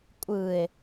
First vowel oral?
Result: yes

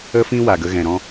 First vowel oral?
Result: yes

